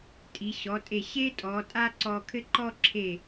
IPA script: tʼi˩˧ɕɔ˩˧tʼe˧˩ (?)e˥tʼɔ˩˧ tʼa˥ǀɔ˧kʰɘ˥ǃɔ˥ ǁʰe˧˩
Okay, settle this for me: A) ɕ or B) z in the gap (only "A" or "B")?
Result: A